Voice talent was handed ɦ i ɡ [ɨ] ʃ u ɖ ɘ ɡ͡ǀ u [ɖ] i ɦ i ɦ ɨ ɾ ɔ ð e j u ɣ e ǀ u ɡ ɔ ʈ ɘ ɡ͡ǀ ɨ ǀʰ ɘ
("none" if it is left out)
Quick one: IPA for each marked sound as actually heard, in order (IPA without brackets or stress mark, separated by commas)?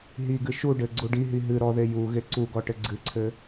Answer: ɨ, ɖ